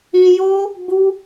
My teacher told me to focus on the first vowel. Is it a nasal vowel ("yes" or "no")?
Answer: yes